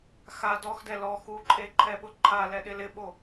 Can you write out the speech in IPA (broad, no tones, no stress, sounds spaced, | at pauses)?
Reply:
x a d ɔ x d ɛ l ɔ x u ǃʼ e ǃʰ ɛ ɓ ʊ ǃʰ a l ɛ ɗ ɪ l ɪ ɓ o